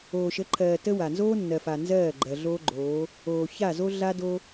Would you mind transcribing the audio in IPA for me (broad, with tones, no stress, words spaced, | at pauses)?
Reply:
oː˨ʃə˨˦ǃʰɜː˨ tə˦wa˨ nzoː˦nːɜ˨fa˨ nzɜː˦˨ ɡ͡ǃɜ˨ɮoː˦ɡ͡ǃoː˨˦ | oː˨ça˦˨zo˦ ɮa˦do˦